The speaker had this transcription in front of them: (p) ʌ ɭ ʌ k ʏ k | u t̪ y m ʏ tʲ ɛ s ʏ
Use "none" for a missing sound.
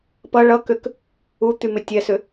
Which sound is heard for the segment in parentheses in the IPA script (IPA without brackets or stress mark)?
p